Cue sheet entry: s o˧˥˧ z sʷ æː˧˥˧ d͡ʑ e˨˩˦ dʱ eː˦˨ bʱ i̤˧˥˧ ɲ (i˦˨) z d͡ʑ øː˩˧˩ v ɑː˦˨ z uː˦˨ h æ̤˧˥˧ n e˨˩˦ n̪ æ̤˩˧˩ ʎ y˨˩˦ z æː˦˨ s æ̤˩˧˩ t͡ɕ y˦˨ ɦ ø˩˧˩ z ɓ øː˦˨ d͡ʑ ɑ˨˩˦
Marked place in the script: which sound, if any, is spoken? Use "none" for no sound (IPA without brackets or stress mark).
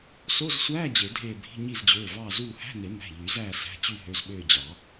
i˦˨